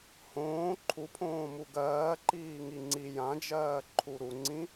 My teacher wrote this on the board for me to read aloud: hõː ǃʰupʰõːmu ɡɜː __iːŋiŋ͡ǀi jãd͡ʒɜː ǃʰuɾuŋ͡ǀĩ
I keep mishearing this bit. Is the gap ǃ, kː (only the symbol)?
ǃ